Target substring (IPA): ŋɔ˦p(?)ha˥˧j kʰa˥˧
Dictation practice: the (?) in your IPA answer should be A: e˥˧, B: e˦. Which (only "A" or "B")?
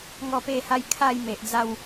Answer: A